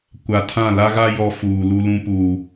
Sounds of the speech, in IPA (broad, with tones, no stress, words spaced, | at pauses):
kʷa˨tʰã˦˨ la˦ɣa˦ jɔ˦fuː˨ lu˦lũ˦ puː˦